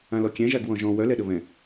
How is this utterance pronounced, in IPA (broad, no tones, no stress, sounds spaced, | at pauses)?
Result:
ã l ɔ kʲ ɛ̃ ʒ a ɡ w ɔ̃ ʒ ɔ̃ w œ l ɛ ɗ ə β ɛ̃